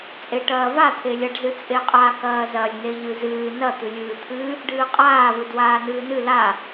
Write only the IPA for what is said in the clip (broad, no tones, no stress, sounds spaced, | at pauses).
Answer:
t͡sʼ e ʈ ɐː v a t̪ʰ e lʲ ɐ ɖ z ɨ t͡sʼ e qʼ a k ɐː z ɐ lʲ n e ʎ ɨ z ɨː n ɐ t̪ ɨ lʲ ɨː t̪ʰ ɨ | ɖ ɨː qʼ aː v ɨ d w aː n ɨː n ɨ l a